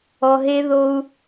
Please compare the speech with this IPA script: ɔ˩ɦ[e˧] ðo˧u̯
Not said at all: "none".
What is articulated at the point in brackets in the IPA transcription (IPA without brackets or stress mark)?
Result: e˧